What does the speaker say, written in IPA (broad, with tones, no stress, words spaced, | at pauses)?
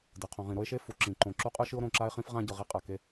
dɯ˩˧qʰõ˩˧ ʁĩ˩˧ɾo˥e̯ʃe˥ fu˩˧ǁĩ˩˧ ǃõ˩˧ǁu˥qʼɯ˥ ʃɯ˥o̯ɾõ˩˧ǁa˥e̯χĩ˥f ʁã˥ɟɯ˩˧ʁi˥qʼa˩˧ ke˥